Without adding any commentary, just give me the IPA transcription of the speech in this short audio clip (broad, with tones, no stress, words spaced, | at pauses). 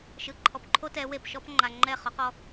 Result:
ʃɯ˨ǃʰɔ˨pǃʰo˦tɛ˨˦ we˨pʃɔ˦pŋ͡ǃa˨ ŋ͡ǃɛ˦˨χɔ˨˦qɔ˦